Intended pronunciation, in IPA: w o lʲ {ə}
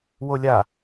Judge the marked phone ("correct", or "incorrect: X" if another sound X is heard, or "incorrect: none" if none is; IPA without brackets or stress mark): incorrect: a